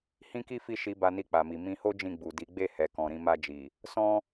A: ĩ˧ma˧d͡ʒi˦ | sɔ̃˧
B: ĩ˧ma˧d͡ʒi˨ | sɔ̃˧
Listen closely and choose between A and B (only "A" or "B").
B